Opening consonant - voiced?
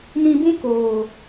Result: yes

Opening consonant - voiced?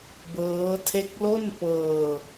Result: yes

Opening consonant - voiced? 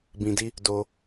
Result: yes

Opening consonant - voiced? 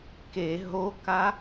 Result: no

